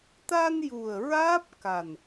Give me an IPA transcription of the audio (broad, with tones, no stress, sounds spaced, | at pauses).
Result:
t̪ a˧ n j u˨˩ ə̯ ɹ aː˦˥ p̚ k a˨˩ n